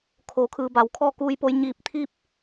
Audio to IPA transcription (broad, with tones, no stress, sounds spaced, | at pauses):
kʰ o˩˧ kʰ ɯː˩ b a˩ w kʰ ɔː˥˨ k uː˧ j p o˧ j ɲ iː˧˩ p̚ t̪ʰ i˥˨ p̚